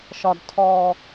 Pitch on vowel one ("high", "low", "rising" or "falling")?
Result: high